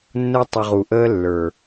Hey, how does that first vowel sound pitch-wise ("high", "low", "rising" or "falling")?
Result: high